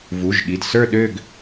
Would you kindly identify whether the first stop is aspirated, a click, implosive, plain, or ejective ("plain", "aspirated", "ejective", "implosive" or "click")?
implosive